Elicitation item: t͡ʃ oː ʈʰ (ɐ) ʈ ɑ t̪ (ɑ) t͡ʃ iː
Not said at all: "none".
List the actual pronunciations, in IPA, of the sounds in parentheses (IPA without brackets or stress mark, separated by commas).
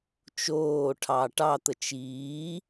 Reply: ɑ, ə